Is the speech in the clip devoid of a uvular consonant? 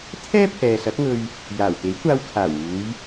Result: yes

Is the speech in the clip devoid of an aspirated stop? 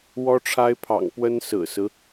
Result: no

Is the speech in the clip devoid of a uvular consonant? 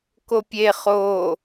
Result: no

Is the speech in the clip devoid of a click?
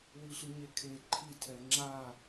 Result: no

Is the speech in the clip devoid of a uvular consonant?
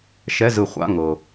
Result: no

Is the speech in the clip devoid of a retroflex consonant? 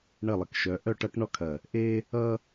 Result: no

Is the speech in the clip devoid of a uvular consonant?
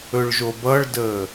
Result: yes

